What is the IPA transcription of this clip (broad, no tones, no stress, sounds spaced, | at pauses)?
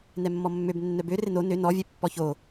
n ɛ mː ɔ mː ø b nː œ b ø r ɪ n o n ø n ɔ vʲ ɛ pː ɔ ç o